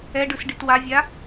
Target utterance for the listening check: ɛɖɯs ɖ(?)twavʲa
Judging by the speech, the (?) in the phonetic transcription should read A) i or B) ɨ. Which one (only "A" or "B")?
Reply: A